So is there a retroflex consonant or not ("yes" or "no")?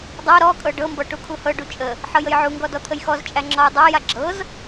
yes